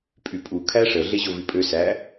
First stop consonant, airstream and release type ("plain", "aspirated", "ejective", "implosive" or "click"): ejective